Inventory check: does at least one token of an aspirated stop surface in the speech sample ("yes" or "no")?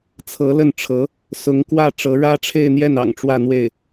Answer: yes